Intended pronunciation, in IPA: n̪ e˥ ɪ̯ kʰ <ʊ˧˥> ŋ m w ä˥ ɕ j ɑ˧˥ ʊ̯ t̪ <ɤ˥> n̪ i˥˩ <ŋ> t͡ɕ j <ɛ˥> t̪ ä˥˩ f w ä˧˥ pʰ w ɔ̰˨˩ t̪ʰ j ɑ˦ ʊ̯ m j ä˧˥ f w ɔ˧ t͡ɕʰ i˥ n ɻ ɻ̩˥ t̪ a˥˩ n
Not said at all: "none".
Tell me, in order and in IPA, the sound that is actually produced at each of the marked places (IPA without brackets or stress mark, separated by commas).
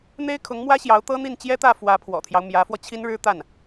ʊ˧˥, ɤ˥, n, ɛ˥